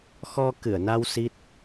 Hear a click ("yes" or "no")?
no